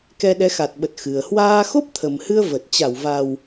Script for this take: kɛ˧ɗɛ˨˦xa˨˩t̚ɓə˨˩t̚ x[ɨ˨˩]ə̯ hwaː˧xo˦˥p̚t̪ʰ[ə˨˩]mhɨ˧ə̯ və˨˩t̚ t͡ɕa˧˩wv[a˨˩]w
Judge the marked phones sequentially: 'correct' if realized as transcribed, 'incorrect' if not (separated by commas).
correct, correct, correct